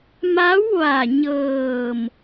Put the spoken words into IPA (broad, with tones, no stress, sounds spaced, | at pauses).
m a˧˥ w ʋ a˧˩ ɲ ɤː˧˩ m